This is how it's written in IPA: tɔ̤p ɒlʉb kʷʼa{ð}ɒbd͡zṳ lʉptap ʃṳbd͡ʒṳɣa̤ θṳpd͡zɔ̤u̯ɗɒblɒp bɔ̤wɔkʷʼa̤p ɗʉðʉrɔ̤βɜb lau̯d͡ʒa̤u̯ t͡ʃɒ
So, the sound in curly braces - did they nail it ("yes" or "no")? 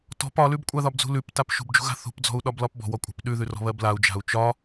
yes